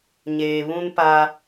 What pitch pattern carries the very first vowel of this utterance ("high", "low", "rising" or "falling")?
low